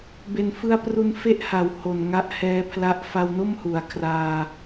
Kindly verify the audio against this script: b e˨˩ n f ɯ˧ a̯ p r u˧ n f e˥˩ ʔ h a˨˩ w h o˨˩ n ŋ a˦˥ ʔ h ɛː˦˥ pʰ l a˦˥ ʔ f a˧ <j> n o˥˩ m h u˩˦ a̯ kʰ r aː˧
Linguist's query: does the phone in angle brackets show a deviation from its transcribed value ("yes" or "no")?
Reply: yes